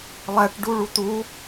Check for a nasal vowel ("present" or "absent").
absent